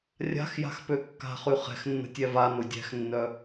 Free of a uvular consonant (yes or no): no